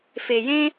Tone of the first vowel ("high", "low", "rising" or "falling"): low